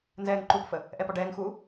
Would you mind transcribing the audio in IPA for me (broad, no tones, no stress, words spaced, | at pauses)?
nzɛːŋǃupfə | ʔɛpɒɖɛːŋxuː